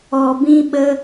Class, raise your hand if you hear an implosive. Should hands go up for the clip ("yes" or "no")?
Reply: yes